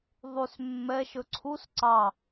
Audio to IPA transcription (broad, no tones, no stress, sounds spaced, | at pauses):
ðˤ y s mː ɛ ʃ ɵ ǀʰ u s ǀ ɑ